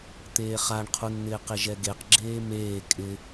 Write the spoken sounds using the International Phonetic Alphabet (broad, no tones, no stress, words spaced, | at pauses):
t̪eːχaɳqʰunn̪ɪː qɪʒɛɡeq ɡ͡ǁeːmeː kʼɪ